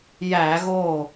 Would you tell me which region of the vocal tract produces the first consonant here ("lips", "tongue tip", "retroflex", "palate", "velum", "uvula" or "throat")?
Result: palate